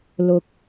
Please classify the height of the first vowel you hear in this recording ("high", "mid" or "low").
high